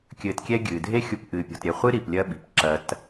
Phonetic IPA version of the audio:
kʲ ɘː˧ t kʲ ɛ˦ ɡʲ ɨː˨ dʱ e˦ xʲ u˧ p ʔ ɨː˧ pʲ ɔ̤˧ t ɾʲ ɛ˧ χʷ ɨ˦ ɾ i˨ p lʲ ɐ˦ ɓ i̤˨ p ǁ ɐ˧ t

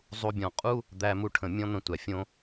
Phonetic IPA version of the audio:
zˤ u˥ bʲ ɔ̃˧ qʼ u˥ | d̪ æ˥ m u˥ ʈʰ ə̃˧ mʲ ɔ̃˥ n̪ ə̃˧ tʷ æ˩ fʲ õ˥

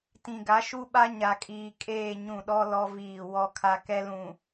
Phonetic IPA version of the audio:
t ĩ˨ ɡ a˨˦ ʃ u˦ ɓ a˦ ɲ a˨ kʼ iː˨ kʼ eː˦˨ ɲ ũ˦˨ ɗ ɔ˦ l ɔ˦ v iː˦˨ w ɔ˦ kʰ a˦ k ɛ˦ l ũ˨

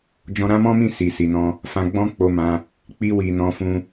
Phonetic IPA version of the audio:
d͡ʒ ɔ̃˧ ɾ ã˦ m ɔ̃˦ m ĩ˦˨ s i˨ s i˨ n ɔ̃˧ | f ã˧ ɡ͡b ɔ̃˦ k͡p o˧ m ã˧ | k͡p i˧ w i˨ n ɔ̃˧ f ũ˧

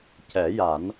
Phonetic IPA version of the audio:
c ɛ˨˩˦ j a˨˩˦ n

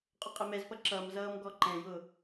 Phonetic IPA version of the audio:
qʼ ʊ qʼ ɪ m ɛ z p ʌ ǁ ʌ m z ʌː m ɡ ɔ ǃ ɛ̃ j ʊ

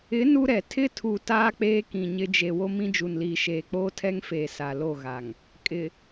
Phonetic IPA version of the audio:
ɪ˨˦ n u˦ ɾ ɛ˨ tʰ ɪ˦ tʰ u˨ t aː˦ k͡p eː˦ k ĩ˨ ɲ ɪ˦ d͡ʒ e˨ w o˦ m ĩ˦ d͡ʒ u˨ n l iː˨ ʃ eː˨ k͡p oː˦ tʰ ɛ˦ ŋ f eː˨ s a˨ l o˦˨ ɣ a˨ ŋ | kʼ ɪ˨

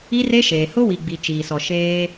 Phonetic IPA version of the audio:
i˦ r e˦ ʃ eː˨ h ʊ˦ w i˨ ɡ͡b i˨ t͡ʃ iː˨ s ɔ˨ ʃ eː˦

